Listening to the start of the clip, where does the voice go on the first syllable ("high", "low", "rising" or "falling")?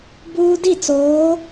high